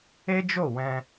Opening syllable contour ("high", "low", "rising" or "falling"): high